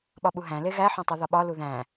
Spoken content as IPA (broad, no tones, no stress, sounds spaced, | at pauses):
ɓ ɒ ɓ u ɦ æ̃ l e ɣ æ ħ õ tˤ u ð ɒ ɓ ɒ l u ð æ̃